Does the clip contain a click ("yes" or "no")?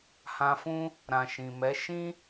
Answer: no